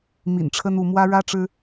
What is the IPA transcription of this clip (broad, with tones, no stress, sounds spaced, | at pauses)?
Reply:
m ḭ˨˩ n ʈ͡ʂʰ ə˦ n u˥˨ m w ä˦ ɻ ä˦ ʈ͡ʂ ɻ̩˦